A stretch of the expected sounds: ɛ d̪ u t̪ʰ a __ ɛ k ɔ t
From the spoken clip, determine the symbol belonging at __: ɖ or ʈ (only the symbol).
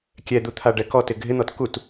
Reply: ɖ